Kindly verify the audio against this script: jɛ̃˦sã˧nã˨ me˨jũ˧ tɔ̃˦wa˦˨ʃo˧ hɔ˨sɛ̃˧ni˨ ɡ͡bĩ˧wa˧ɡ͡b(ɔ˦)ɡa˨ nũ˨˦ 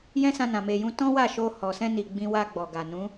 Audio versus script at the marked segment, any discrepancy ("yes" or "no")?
yes